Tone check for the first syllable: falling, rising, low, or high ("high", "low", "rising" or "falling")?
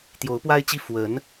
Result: rising